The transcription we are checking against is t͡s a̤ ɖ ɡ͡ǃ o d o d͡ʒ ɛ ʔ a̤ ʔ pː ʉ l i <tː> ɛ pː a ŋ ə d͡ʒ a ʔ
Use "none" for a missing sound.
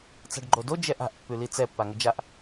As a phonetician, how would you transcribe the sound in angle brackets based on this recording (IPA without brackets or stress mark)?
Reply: t͡s